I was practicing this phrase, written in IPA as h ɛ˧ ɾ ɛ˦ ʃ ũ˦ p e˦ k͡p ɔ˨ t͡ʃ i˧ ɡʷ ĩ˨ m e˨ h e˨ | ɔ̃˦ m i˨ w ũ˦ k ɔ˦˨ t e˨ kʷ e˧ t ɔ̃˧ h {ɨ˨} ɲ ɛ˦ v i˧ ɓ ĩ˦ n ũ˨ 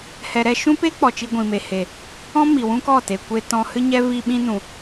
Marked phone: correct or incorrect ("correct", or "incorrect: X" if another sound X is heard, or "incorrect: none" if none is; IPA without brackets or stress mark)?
incorrect: ɨ˦